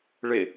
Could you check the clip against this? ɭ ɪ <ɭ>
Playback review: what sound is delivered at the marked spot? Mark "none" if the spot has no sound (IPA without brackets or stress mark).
none